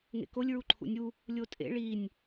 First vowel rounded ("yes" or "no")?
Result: no